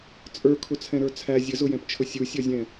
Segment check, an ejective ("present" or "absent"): present